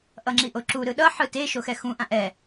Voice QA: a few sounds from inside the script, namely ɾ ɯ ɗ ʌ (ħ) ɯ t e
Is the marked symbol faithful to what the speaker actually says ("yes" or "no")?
yes